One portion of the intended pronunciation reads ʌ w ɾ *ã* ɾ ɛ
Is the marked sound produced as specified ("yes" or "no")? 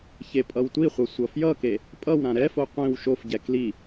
yes